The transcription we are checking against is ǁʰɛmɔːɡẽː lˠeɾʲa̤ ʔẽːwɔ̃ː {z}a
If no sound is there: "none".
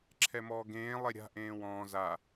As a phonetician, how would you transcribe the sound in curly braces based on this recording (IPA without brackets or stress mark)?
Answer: z